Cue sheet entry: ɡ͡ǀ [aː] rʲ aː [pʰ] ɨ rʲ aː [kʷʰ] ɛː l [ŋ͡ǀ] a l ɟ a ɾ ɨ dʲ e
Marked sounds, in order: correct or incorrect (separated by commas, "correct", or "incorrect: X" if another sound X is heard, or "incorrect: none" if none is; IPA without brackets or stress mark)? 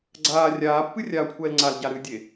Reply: correct, incorrect: pː, correct, correct